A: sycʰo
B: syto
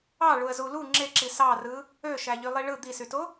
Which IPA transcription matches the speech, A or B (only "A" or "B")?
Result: B